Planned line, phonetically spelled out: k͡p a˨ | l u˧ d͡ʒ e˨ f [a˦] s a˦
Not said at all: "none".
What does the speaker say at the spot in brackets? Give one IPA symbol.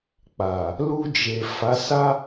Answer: a˨˦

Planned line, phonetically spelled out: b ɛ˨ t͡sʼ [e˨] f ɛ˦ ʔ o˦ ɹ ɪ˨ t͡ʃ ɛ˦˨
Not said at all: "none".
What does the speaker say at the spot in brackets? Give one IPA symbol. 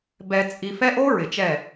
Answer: i˨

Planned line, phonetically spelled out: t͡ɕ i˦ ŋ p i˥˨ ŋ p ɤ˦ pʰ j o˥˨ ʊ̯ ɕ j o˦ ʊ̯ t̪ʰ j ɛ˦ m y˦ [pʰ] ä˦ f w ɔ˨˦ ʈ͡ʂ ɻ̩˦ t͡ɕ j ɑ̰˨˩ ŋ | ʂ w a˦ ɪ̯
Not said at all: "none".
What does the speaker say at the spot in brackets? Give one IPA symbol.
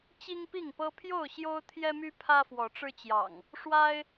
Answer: pʰ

